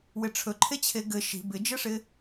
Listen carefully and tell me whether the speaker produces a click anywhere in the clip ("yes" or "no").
yes